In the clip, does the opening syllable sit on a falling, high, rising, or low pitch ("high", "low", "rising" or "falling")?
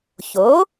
rising